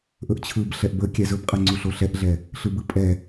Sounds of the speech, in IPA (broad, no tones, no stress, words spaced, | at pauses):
ʔɵʔt͡ɕʰɯb ɬɛʔbə kʲɛzɵbqʼɛ ŋ͡ǀuɬoɬɛʔɮɛ | ɬɯbɯpʼɛ